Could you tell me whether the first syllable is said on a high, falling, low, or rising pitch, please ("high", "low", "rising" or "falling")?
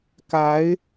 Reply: rising